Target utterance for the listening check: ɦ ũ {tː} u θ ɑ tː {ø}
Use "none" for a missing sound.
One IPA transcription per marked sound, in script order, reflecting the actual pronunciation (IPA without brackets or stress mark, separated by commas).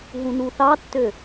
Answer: n, ø